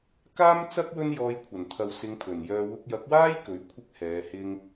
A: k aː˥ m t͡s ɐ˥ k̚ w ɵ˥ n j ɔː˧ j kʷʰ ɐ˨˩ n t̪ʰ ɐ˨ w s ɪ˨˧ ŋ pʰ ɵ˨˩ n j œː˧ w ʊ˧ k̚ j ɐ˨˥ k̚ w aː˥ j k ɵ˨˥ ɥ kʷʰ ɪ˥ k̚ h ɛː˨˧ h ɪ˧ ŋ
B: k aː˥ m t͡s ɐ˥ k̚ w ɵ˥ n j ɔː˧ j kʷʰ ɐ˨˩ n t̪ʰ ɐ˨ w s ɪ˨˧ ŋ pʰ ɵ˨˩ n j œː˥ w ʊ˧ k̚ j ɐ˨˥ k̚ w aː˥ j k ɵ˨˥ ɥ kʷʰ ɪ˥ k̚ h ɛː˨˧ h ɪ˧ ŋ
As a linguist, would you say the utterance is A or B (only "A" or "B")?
A